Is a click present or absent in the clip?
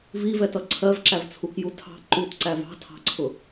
present